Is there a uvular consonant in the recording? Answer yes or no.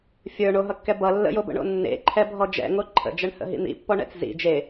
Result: no